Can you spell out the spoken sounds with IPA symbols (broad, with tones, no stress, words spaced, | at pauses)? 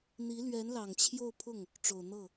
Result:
n̪i˧˥lɥɛ˧˥nlɑ˨˩ŋ t͡ɕʰjo˥˧ʊ̯pʰʊ˥˩ŋ | ʈ͡ʂo˨˩ʊ̯n̪ɤ˥˩